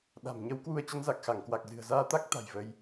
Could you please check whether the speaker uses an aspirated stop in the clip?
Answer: no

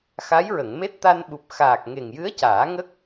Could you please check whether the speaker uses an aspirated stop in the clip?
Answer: no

